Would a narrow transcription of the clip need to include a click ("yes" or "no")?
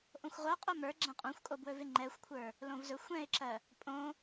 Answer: yes